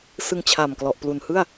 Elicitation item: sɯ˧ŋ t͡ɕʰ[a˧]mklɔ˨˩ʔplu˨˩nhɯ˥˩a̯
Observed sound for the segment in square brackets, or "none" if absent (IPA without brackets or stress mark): a˨˩